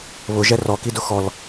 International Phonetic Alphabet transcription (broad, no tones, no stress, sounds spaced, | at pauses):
β ʊ ʒ ɛ r ɔ k i d ʊ x ɔ l